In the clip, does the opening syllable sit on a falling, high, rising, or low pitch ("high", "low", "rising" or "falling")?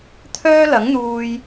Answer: high